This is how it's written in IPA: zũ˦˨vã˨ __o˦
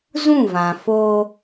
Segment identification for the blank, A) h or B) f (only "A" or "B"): B